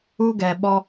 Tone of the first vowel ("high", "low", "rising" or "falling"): high